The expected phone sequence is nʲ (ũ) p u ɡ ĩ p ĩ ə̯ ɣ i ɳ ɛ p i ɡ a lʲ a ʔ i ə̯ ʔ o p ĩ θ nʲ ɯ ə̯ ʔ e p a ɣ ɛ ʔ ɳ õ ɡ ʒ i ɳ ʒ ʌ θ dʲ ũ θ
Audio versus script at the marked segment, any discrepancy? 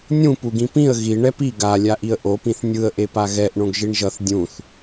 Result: no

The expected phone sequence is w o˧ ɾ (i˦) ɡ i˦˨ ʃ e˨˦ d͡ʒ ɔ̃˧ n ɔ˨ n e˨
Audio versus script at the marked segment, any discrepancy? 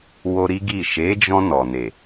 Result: no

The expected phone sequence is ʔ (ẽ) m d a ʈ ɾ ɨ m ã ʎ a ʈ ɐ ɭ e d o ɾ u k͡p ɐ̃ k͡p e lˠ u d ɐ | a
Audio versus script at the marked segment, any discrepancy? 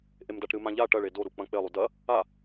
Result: yes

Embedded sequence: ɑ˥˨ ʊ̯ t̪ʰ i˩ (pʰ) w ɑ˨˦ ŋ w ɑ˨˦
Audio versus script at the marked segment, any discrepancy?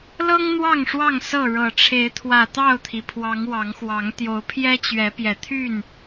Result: no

